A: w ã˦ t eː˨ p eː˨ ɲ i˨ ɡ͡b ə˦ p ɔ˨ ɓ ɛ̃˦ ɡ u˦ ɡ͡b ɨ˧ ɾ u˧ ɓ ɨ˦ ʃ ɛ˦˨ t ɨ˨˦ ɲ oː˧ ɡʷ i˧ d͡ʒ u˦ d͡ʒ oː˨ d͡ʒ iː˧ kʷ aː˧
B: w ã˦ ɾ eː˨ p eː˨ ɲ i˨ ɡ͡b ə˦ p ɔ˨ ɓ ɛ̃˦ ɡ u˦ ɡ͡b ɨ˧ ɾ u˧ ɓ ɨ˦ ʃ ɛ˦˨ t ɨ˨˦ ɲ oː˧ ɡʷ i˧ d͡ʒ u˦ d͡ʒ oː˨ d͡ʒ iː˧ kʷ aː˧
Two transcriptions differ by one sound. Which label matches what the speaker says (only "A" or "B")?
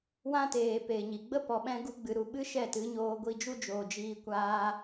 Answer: A